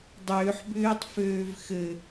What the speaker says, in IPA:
dˤ ʏː ħ b ʏː tˤ f øː v x ɘ

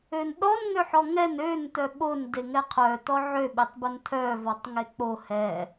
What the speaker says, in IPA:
ø n ɗ ɔ n ŋ ø ħ ɔ ŋ ɛ n ø n t œ ɓ o n d e ŋ ɛ qʰ œ t ɔ ʕ ø ɓ e tˤ b o n tʰ œ v ɔ tˤ ŋ e k͡p o h ɛ

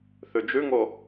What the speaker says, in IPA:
θ ʉ d͡ʒ ʉ ŋ o

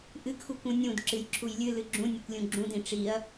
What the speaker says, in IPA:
ʔ ɨ ɡ x u kʷ ũ nʲ ũ d ǁ ɨ j ǁʰ u j lʲ ɨ l ɨ ɡ͡ǁ ũ nʲ ɨ kʷ lʲ ũ ɡ͡ǁ ũ d ĩ ʈ͡ʂ i ɐ̯

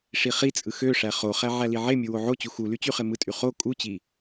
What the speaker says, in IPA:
ʂ i χ i t͡sʼ ɯ x ø ʂ æ χ o χ æ ʕ æ l i ʕ e mʲ u w o ʕ o t͡ɕ u x u l y t͡ɕ y χ e m ɯ tʼ y χ o kʼ u t͡ɕ i

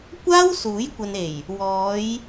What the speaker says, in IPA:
kʷ aː˥ w s uː˨˥ j kʷ ɐ˨ n e˨˩ j | w ɔː˨˧ j

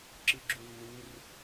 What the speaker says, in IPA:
ǁ ɯ ɡ͡ǁ u lː u r

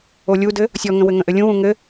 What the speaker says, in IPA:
o lʲ u d ɘ | sʲ ɔ ŋ ə̃ w ɘ ŋ ə̃ ʔ ɘ lʲ ũ w ũ ŋ ɘ

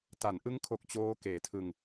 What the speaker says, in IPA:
t a˩˦ n ʔ ɯ˦˥ ŋ kʰ o˨˩ k̚ t͡ɕ oː˦˥ k eː˩˦ tʰ ɯ˧ ŋ

